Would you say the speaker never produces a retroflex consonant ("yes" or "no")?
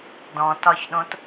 yes